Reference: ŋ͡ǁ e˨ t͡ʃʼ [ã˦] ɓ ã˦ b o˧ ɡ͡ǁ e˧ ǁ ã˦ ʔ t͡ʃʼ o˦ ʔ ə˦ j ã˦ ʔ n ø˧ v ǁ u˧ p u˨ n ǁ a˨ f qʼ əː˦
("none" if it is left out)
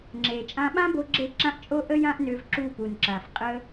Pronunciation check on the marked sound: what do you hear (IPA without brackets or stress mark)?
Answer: ã˦